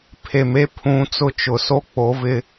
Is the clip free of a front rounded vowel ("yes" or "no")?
yes